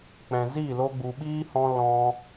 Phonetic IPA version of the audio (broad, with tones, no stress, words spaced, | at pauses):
k͡pɛ̃˨zi˦˨ lo˦ɡ͡bu˧ ɓiː˦hɔ̃˧ lɔ̃˧